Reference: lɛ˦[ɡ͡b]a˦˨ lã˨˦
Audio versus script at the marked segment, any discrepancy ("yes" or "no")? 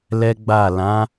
no